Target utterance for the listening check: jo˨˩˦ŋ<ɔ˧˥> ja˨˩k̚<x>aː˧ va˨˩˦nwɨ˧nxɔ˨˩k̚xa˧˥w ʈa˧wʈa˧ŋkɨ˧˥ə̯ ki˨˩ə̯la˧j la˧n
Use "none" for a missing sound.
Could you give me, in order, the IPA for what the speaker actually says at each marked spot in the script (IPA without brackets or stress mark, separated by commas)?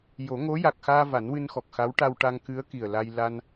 o˧˥, x